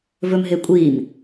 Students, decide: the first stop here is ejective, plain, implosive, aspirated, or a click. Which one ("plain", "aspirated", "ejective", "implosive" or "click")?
ejective